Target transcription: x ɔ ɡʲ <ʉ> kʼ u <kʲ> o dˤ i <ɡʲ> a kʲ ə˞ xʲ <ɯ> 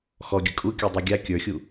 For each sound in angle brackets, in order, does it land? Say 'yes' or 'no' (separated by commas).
no, yes, yes, no